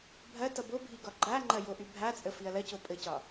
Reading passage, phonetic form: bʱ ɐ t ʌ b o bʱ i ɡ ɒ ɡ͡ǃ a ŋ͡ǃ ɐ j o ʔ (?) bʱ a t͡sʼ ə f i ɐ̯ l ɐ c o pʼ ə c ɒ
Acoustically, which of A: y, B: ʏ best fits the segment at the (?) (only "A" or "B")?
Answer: A